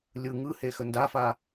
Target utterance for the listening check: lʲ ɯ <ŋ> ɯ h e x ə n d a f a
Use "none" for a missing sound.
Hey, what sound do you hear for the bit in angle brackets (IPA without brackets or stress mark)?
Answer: ŋ